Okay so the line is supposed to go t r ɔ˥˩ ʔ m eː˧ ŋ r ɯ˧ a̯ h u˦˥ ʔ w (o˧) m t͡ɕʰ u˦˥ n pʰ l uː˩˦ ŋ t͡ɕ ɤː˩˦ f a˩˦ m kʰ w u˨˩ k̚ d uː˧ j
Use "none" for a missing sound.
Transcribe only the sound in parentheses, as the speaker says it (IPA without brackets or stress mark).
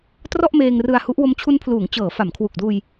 o˧